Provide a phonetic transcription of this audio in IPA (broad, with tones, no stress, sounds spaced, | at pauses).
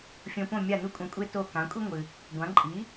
fʲ õ˧ p õ˥˩ mʲ a˥˩ n u˥ kʷʼ ɐ̃˧ kʷʼ e˥ t o˥˩ k ã˩˥ kʷʼ i˥ ŋʷ ɨ˩ | ɡʷ ã˩˥ ǃʼ i˩˥